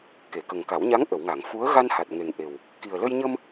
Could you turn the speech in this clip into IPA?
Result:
k e˨˩˨ k ə˨˩ ŋ k a˨˩˦ w ɲ a˧˥ ŋ ʔ ə˨˩˨ w ŋ a˨˩˨ ŋ f u˧˥ ə̯ ɣ a˧ n h a˨˩ t̚ ŋ e˨˩ ŋ ʔ e˨˩ w | k i˨˩ ə̯ l ə˧ j ɲ ə˧ m

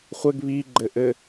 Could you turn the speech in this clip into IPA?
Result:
χʷ ɘ ɡ β i ɡ͡ǃ ɘ ʔ ɘ

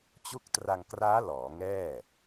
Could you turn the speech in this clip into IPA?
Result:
t͡ɕ u˦˥ k̚ t r a˧ ŋ k r aː˦˥ l ɔː˩˦ ŋ ɛː˥˩

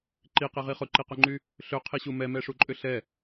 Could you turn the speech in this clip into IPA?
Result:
ǃ i q i ʁ i χ ʊ ǃ i q ʊ ŋ͡ǃ y | ɬ ø qʰ i ɕ u m ɛ m ɛ ʂ u ǃʼ ʏ ɬ ɛ

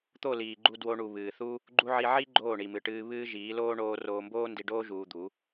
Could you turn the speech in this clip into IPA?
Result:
t̪ o˦˨ l iː˨ ɡ͡ǃ u˧ d w o˧ ɳ u˨ β ɨː˨ θ u˦ | ɡ͡ǃ u˦ ʕ i˧ ʕ i˦ ɡ͡ǃ oː˦˨ ɳ i˨ m ɨ˨ ʈ ɨː˧ β ɨː˦ ʒ iː˨˦ l oː˦ ɳ oː˦ r oː˧ m b oː˦ n d i˧ ɖ oː˦ ʒ uː˧ d̪ u˨˦

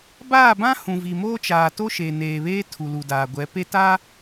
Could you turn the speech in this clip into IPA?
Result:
b aː˦˨ b ã˦ h ũ˨ v i˨ m oː˦ t͡ʃ aː˨ t o˦ ʃ e˨ n eː˨ β eː˦ tʰ u˨ l u˨ d aː˨ ɡʷ ɛ˨˦ p e˦ t a˦

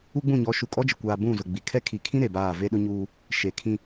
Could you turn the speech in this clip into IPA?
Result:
u˦ ɡ͡b ũ˦˨ ɲ ɔ˨˦ ʃ u˨ kʼ ɔ˦ d͡ʒ ɪ˨ kʷ aː˨ b ũ˦˨ z ʊ˨ ɡ͡b i˨ kʰ ɛ˦ kʰ i˨ kʰ ĩ˦ ɾ e˨ b aː˦˨ v e˦ ɗ ʊ˦ ɲ uː˦ | ʃ e˨ kʰ ĩ˦

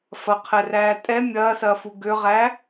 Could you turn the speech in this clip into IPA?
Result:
f ɐ qʰ ɛ r æː tʼ ɛ mʲ ɐː s ɐː f u ɡ ø ʁ æ

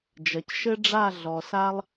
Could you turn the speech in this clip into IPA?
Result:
d͡ʒ ɐ˨ c ʃ ɘ˦ ɖ͡ʐ a˦˨ ɮ ɔ˨ s a˧ lˠ

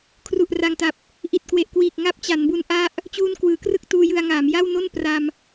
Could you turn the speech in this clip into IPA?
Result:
kʰ r u˨˩ ʔ r a˨˩ ŋ t a˨˩ p̚ | ʔ i˨˩ t̚ k w e˨˩ ʔ k w iː˨˩ k̚ ŋ a˦˥ p̚ t͡ɕ a˩˦ n b u˦˥ n ʔ a˦˥ ʔ | t͡ɕ uː˧ n k w ɯː˩˦ k r ɯ˥˩ k̚ t uː˧ j ɯ˧ a̯ ŋ aː˩˦ m j a˥˩ w n o˥˩ n p r a˧ m

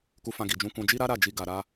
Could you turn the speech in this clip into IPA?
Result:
k u˧ f ã˧ ɡ i˨ d͡ʒ ũ˧ k ũ˧ d͡ʒ i˦ ɾ a˦ ɾ a˦˨ d͡ʒ i˧ ɡ a˧ ɾ a˦

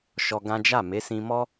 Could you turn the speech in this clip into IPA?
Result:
ʃ ɔ˧ ɡ ã˦ d͡ʒ a˦˨ m e˨˦ s ĩ˧ m ɔ˦

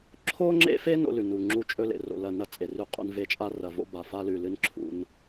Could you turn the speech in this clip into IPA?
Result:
ǁʰ o˦ ŋ͡ǁ ḛ˦ f e˦ n o̰˦ l ʉ˨ n u˨ ŋ͡ǁ u˦ t͡ʃʼ ɵ˦ l ḛ˨ r o̰˨ l ɐ˨ n ɐ˦ t͡sʼ e˨ r ʉ˦˨ qʼ ṵ˦ n v e˦ t͡ʃʼ a˦ r ɐ˨ v o̰˦ b a˨ f a˦ l ʉ˨ l ɨ˦ n ǁʰ ṵ˦ n

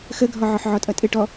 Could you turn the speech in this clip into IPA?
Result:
x ə ɡʱ ɔ ʕ ɔ ħ ʕ ɔ tʼ ʌ tʼ ɪ ʈ ɔ

